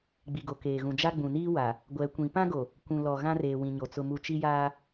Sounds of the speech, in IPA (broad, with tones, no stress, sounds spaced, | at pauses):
ɡ͡b i˨ ɡ o˨ k eː˨ ɣ ũ˨ d͡ʒ a˦ ɡ͡b ũ˨ n iː˦ w a˨ | ɡʷ ɛ˨˦ kʷ ĩ˨˦ p ã˦ ɡ o˨ | kʷ ũ˨ l ɔ˨ ɣ ã˦ r eː˨ w ĩ˨ ɲ o˨ t͡s ʊ˦ m u˦ t͡ʃ i˦ j aː˦